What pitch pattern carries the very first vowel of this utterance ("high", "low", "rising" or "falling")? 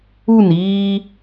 falling